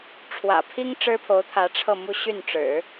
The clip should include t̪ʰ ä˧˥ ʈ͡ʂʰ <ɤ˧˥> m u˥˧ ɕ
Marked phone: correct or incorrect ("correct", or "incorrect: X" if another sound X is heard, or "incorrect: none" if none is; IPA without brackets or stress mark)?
incorrect: ɤ˥˧